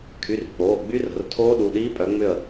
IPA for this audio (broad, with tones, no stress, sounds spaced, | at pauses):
kʰ y˩˧˩ r k͡p oː˩˧˩ ɡ͡b y˦˥ r ə̤˩˧˩ r tʰ oː˦˥ ɗ u˩˧˩ ɗ iː˦˥ pʼ œ˨˦ ŋ͡m ʏ˥˧ ə̯